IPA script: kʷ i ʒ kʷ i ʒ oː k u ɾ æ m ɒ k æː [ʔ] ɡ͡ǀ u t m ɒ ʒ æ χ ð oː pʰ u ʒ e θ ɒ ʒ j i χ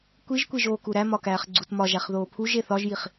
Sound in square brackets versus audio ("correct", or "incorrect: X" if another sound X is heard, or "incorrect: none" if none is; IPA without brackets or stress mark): incorrect: χ